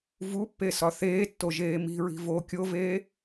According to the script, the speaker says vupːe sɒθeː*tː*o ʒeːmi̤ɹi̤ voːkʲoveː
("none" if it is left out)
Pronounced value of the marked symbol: tː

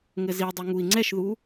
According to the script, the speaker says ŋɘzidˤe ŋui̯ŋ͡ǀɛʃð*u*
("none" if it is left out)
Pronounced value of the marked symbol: u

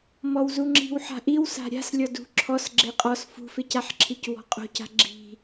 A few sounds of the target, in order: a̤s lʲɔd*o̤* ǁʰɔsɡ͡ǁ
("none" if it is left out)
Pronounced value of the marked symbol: ṳ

